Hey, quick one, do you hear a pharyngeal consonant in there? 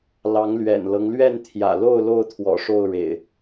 no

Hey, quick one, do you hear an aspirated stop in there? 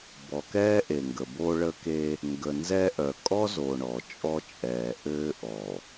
no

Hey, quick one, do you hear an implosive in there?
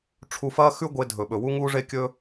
yes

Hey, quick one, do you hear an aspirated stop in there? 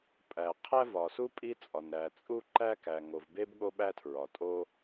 yes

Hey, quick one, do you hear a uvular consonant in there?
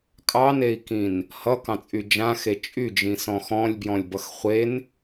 yes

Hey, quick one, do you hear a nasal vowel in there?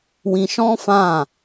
yes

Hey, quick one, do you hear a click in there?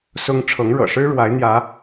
no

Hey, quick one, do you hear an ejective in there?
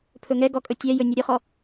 yes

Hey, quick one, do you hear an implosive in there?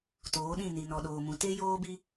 yes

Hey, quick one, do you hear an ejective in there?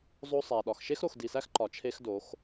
no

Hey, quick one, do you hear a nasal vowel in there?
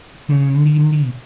yes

